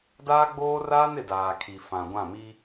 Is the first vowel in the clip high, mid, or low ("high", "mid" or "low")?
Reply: low